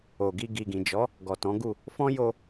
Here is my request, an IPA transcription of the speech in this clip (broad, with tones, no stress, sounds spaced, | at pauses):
o˨ ɡ i˧ ɡ i˨ ɡ ĩ˨ d͡ʒ ɔ˨˦ | ɡ ɔ˨ t ɔ̃˨˦ ɡ u˦˨ | f ɔ̃˦ j o˧